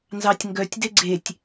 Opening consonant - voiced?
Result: yes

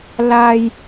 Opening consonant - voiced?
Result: yes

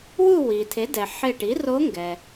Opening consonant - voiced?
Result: yes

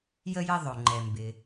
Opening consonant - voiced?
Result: yes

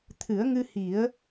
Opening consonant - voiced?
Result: no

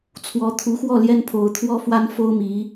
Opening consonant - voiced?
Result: no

